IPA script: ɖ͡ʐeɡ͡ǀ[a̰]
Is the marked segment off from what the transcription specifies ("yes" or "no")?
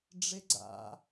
no